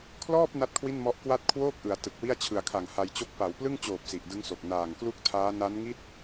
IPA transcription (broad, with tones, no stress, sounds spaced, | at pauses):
kʰ l ɔː˥˩ p̚ n a˥˩ t̚ kʰ w i˥˩ n m ɔ˦˥ ʔ k w a˥˩ t̚ kʰ w oː˥˩ k̚ ʔ ɯ˩˦ a̯ t ɯ˨˩ k̚ w i˥˩ a̯ t͡ɕʰ ɯ˨˩ a̯ kʰ a˨˩ ŋ h a˧ j t͡ɕ o˦˥ k̚ p a˩˦ w p l ɯ˥˩ ŋ t͡ɕ oː˨˩ p̚ s i˨˩ ʔ d ɯ˦˥ ŋ s o˨˩ k̚ n aː˨˩ ŋ k l u˥˩ k̚ tʰ aː˦˥ n a˦˥ n ŋ i˥˩ t̚